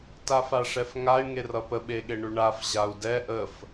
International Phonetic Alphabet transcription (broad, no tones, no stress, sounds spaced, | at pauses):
t a f a ʂ ɛ f ŋ a y̯ ŋ e r ʌ p ə ɓ e ɠ e ɳ ʉ ɳ a f ʑ a u̯ d ɛ ʔ ə f